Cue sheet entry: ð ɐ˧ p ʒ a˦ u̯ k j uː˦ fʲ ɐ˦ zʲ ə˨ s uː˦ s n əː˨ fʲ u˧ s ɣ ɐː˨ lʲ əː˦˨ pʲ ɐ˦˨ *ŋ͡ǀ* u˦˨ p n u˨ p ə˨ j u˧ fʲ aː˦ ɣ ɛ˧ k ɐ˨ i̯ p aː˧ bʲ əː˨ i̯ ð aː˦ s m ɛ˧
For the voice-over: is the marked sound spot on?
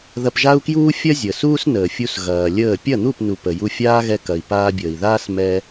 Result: no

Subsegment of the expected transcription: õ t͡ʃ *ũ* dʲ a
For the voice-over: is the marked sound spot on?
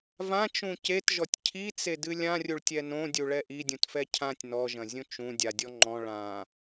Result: yes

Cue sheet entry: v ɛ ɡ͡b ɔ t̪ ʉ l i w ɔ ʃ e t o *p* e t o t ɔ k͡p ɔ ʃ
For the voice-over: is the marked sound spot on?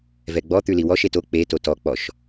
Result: no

